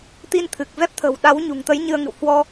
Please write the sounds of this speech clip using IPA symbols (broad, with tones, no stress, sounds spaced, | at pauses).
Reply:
t̪ i˧ n t̪ʰ ɨ˨˩ k̚ v ɛ˦˥ p̚ t̪ʰ ə̤˨˩ w ɗ a˨˦ w ɲ ṳ˨˩ ŋ t̪ ə˨˦ j ɲ ɨ˧ ə̯ ŋ ɨ̰˧˨ w h w ɔ˧